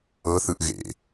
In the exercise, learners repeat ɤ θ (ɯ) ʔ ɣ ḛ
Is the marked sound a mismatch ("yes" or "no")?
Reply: no